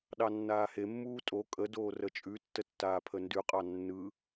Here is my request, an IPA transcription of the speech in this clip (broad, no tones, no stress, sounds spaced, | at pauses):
ɗ ɑ nː aː h e mː uː tʼ o kʼ ə d oː r ə t͡ʃʼ ʉ tː ə tː aː pʰ ə n d ʉ qʼ ɑ nː ɯ